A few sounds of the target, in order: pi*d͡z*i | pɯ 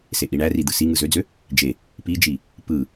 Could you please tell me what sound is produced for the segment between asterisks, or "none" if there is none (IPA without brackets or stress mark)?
d͡ʒ